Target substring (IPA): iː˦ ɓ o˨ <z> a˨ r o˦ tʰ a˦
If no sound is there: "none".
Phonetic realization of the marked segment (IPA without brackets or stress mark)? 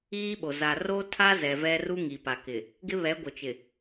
z